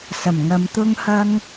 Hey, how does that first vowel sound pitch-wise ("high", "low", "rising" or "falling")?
low